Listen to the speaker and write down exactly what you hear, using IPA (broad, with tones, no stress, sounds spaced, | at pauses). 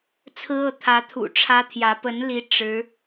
t͡sʰ ɹ̩˥ ɤ˥˩ t̪ʰ ä˧˥ t̪ʰ ṵ˨˩ ʈ͡ʂʰ ä˥ t̪ʰ j ä˧˥ p ə˧˥ n l i˧˥ ʈ͡ʂ ɻ̩˧˥